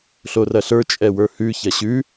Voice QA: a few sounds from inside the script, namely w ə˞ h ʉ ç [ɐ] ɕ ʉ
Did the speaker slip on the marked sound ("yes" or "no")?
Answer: no